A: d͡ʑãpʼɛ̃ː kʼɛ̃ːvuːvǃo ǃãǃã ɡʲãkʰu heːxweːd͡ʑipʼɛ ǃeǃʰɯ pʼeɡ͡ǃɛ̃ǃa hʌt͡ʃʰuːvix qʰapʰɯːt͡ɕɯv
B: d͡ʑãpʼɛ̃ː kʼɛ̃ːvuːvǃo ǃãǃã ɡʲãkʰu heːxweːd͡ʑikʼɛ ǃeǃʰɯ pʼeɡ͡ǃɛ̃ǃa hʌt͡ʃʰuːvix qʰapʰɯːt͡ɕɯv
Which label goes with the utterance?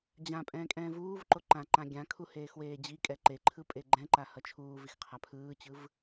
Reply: B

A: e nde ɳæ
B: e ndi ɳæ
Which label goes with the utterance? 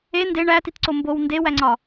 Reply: A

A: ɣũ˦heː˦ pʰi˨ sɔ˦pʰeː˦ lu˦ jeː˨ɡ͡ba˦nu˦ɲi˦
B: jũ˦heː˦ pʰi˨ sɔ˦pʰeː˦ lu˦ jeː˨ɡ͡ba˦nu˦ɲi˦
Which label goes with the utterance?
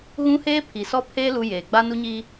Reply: A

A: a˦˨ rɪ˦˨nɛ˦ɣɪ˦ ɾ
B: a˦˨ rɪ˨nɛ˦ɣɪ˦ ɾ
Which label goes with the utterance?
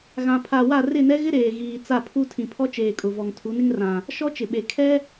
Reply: A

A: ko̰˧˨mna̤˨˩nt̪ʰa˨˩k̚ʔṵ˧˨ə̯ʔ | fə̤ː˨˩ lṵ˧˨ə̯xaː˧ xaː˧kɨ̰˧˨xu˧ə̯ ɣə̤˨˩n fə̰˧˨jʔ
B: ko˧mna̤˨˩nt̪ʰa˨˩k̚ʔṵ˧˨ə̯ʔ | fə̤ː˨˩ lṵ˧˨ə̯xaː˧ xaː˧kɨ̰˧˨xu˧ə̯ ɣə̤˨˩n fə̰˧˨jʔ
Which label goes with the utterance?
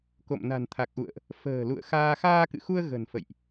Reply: A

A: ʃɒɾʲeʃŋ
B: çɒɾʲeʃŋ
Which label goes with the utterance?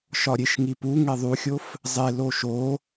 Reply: A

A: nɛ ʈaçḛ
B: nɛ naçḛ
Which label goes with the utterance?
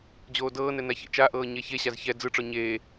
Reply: B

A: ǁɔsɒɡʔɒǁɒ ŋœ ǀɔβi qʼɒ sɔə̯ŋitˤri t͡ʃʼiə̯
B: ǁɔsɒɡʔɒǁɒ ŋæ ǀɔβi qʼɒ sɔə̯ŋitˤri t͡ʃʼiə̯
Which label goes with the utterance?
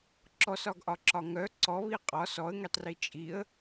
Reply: A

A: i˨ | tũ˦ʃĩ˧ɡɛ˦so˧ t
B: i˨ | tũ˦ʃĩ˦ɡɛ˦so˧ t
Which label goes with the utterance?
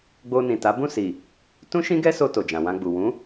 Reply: B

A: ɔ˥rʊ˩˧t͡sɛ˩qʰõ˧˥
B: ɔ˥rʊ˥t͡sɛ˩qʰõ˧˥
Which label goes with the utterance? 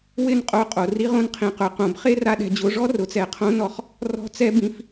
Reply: A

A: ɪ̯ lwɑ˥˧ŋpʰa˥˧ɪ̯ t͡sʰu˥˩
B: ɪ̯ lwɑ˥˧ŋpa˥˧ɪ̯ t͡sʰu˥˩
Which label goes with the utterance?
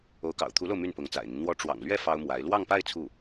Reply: B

